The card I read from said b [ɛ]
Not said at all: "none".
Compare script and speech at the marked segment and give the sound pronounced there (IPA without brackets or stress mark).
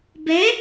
ɛ